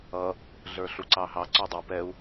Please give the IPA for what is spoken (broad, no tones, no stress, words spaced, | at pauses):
ʌ | ɮə˞ɬuǀɑɦɑ ǀɔdˤʊ pɛu̯